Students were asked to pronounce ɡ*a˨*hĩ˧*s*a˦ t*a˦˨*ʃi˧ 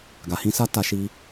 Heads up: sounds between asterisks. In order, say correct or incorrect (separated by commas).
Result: correct, correct, correct